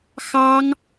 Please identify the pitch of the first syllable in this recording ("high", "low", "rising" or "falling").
high